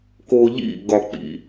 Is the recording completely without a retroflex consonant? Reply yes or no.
yes